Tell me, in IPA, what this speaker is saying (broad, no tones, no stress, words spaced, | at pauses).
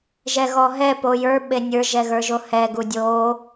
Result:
ʒɛɣɔɦɛ pojə˞ ɓenʲə˞ ʒɛɣə˞ʒohɛ ɡudʲo